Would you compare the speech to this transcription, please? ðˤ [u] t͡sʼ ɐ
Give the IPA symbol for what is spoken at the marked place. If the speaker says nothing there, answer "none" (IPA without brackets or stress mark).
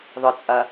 ʊ